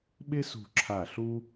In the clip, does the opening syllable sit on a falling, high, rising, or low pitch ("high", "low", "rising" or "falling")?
high